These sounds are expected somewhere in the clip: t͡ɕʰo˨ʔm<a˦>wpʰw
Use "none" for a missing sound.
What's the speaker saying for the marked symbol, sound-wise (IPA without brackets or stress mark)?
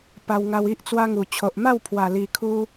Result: a˥˧